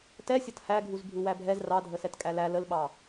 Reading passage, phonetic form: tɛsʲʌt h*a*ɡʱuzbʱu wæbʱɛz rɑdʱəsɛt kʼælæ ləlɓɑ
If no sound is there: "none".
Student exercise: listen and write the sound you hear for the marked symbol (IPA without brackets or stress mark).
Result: æ